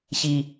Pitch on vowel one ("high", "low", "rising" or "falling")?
low